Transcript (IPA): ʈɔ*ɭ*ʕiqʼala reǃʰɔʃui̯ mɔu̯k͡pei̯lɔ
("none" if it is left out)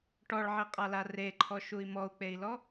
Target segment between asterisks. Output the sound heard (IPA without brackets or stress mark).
ɭ